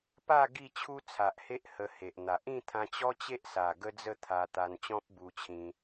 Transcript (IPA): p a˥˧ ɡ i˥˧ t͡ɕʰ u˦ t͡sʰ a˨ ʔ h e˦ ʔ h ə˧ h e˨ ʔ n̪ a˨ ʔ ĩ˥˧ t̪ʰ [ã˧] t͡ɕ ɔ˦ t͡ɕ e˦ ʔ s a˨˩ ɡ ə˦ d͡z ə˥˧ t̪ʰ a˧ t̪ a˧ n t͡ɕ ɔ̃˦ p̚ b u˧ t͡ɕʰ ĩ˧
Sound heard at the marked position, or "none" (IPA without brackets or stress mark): ã˧